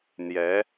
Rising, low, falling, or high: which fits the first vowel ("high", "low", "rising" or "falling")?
rising